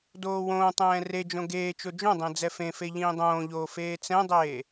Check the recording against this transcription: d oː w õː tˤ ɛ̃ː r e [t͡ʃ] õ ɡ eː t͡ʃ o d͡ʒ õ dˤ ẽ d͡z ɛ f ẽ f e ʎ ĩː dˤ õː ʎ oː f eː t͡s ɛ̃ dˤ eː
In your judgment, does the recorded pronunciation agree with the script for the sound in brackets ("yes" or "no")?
no